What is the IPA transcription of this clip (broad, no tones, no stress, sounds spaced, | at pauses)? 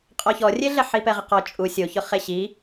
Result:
qʼ ɔ ç ɔ rʲ e ɮ ɛ ħ i p ɛ ʁ ɪ q ɔ t͡ʃʼ u sʲ o ç ʊ χ e ɕ i